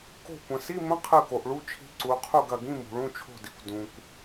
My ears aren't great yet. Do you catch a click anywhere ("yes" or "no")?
yes